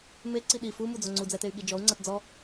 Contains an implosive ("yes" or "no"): yes